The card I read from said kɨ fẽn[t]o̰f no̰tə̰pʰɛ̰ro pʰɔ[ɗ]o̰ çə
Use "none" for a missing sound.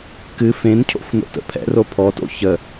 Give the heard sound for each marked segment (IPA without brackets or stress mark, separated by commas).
cʰ, t